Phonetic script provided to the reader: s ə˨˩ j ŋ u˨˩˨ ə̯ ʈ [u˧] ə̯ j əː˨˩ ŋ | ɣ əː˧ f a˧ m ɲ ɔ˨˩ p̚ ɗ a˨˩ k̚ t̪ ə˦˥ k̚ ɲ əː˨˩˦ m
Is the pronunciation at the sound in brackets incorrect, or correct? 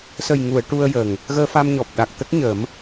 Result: correct